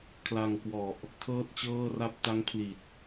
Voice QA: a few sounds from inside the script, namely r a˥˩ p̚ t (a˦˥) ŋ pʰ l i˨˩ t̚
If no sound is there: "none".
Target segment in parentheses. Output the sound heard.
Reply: a˦˥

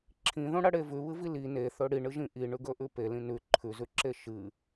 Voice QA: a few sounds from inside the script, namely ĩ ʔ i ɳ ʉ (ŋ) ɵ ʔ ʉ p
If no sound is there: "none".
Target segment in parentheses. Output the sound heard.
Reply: ɡ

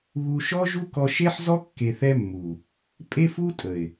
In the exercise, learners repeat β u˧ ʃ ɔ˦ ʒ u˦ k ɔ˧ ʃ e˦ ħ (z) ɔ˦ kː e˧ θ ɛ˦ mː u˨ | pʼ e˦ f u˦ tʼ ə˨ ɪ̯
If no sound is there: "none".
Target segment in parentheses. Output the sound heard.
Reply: z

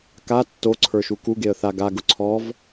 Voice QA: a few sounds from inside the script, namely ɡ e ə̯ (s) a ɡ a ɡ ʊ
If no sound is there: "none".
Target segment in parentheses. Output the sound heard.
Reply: θ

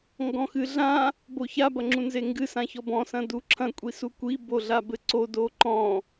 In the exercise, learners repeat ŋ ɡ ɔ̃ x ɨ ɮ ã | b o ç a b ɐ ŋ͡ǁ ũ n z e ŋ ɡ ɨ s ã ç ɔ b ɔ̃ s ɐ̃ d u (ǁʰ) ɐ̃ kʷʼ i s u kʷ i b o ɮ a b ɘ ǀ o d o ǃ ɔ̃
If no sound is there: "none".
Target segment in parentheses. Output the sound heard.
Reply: ǁʰ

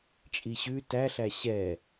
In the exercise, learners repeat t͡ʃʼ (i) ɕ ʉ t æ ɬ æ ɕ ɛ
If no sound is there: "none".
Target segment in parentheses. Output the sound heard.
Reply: i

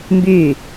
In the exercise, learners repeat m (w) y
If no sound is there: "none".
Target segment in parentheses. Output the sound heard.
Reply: b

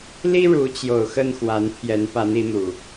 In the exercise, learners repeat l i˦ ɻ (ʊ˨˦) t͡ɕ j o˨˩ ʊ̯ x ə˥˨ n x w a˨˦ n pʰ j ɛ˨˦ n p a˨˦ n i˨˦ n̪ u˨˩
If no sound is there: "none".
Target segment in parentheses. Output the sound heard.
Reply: u˨˦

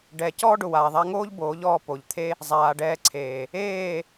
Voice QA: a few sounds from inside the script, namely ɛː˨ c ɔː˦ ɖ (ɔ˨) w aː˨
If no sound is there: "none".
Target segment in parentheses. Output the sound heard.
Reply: ʊ˨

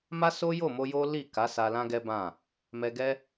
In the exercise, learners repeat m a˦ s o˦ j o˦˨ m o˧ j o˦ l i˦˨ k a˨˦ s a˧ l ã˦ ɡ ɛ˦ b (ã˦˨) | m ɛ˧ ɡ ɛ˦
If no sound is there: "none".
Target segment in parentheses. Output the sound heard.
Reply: ã˦˨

